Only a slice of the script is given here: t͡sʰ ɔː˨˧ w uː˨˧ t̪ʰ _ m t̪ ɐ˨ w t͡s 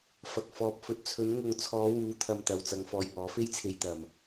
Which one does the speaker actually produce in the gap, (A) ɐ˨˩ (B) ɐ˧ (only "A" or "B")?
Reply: B